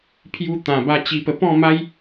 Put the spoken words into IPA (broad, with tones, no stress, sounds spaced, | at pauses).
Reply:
pʰ j u˧ t̪ ã˨˩ b a˧ t͡ɕ i˧ p ə˧ p ɔ̃˥˧ m a˦ j